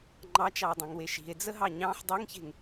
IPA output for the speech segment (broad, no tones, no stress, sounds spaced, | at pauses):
ŋ͡ǃ ɑ t͡ʃ ɑ o̯ dˤ ã ŋ w e ʃ i̤ e̯ d͡z ə ɦ ɑ ɲ ɑ̃ ħ dˤ i ŋ ç e̤ ŋ